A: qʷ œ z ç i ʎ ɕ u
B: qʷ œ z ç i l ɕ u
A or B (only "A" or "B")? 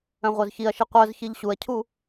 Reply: A